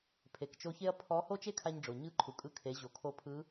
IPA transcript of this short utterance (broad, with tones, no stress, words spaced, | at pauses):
pʰe˩kt͡ʃo˧çe˥ɐ̯ pʰɔ˧˥ ho˥t͡ʃe˥kʰa˧ɲɖ͡ʐo˩ ɲɯ˧˥ ǃʰu˩kʼɯ˧kʰe˩˧ ʑo˩˧kʰo˧˥pʰɯ˧˥